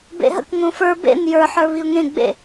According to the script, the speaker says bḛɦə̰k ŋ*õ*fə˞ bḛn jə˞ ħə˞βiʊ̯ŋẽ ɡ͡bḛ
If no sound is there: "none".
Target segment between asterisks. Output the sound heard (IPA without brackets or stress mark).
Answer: õ